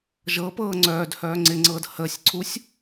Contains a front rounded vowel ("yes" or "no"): yes